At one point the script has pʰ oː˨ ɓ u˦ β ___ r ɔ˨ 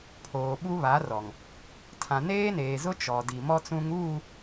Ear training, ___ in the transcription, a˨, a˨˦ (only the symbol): a˨˦